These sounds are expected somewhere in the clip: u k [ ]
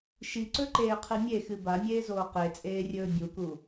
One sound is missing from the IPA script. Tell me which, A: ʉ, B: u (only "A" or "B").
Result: B